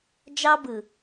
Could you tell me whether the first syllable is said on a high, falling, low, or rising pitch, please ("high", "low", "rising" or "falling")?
high